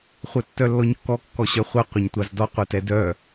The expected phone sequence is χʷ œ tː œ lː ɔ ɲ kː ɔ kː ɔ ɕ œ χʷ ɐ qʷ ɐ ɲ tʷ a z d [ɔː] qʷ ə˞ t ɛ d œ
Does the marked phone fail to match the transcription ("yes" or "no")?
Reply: yes